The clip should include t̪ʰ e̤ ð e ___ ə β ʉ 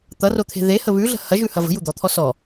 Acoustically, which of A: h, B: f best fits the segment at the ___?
A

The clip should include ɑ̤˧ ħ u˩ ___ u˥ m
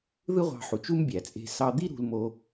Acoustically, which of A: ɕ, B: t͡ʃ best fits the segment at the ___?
B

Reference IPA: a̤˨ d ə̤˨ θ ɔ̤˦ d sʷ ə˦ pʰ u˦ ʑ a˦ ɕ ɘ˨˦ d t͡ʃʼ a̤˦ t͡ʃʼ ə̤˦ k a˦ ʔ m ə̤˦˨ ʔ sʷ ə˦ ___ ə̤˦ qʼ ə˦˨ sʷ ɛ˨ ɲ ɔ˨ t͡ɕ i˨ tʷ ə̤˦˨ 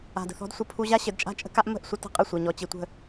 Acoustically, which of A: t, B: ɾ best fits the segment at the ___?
A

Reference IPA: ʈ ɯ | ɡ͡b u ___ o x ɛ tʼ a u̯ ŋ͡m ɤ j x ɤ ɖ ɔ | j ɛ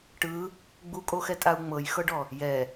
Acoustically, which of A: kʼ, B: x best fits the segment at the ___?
A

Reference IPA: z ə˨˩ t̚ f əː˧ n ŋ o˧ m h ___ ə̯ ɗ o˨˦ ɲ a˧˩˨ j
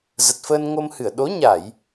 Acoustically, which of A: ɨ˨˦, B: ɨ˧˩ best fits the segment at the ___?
B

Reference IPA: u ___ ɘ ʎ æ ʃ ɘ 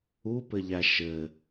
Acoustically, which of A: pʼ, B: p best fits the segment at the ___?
B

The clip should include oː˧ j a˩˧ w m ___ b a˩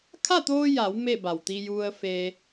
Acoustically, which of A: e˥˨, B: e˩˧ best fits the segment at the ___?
A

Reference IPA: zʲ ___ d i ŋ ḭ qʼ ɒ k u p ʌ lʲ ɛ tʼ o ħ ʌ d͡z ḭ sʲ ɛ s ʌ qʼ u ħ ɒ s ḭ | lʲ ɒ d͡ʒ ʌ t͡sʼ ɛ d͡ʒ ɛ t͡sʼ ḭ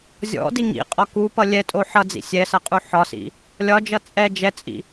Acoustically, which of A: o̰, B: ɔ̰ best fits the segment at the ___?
B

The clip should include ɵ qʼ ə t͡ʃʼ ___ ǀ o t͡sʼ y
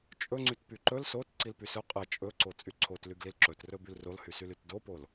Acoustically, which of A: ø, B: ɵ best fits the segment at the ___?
B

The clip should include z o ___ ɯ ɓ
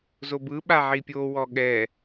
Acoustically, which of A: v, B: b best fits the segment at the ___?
B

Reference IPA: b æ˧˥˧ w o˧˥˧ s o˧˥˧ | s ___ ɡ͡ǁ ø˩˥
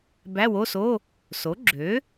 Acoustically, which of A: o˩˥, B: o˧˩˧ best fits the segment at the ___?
A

